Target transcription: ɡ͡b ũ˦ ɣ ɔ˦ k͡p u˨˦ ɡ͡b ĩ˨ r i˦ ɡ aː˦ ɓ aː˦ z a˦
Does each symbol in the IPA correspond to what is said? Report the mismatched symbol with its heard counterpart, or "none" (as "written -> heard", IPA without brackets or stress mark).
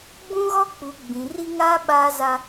ɡ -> ŋ